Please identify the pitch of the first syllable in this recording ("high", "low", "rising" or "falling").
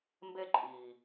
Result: high